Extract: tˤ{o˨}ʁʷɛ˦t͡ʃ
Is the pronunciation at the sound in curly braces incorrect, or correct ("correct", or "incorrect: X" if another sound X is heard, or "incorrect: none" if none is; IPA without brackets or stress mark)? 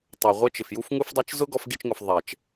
correct